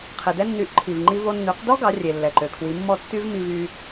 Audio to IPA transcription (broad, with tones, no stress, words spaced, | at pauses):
qʰe˩dɛ˧nːy˩˥ʔ ǃʰi˩vŋ͡ǃi˧vo˧ nːy˩˥qdɔ˥ ɡɑ˩˥rʲe˩ lːɛ˩ǃø˩kʰwi˩˥ mːɔ˥˩tːy˥vmi˧vy˧